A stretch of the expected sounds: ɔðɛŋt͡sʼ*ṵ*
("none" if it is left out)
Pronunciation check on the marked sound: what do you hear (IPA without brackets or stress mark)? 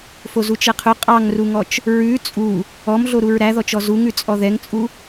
u